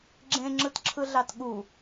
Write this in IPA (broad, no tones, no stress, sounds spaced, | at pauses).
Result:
ɡ͡ǁ ẽ ŋ͡ǁ ɯ t ǁʰ ɯ ɮ ɑ t ɠ u